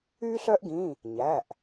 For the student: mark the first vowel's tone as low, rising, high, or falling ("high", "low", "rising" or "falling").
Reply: high